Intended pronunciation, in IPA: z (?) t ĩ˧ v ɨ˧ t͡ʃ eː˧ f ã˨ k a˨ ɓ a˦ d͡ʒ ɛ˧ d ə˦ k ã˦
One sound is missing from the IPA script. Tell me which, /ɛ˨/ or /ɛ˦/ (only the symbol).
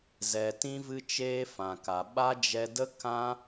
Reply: ɛ˨